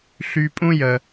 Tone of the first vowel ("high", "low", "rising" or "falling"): low